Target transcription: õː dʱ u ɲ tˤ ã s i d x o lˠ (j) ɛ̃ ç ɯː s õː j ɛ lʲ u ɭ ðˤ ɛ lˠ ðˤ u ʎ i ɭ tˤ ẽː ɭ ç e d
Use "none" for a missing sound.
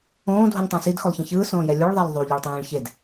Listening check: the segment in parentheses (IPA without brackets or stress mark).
ç